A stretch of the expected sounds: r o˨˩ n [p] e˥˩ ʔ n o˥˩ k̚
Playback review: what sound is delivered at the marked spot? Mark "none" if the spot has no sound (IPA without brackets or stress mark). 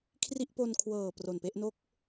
p